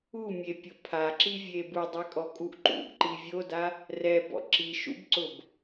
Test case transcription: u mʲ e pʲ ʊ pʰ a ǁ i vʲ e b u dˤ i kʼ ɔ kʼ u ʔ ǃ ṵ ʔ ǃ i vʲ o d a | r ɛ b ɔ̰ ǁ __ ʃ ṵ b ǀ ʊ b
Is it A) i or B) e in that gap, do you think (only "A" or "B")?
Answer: A